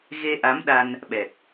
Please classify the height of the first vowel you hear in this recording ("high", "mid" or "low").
mid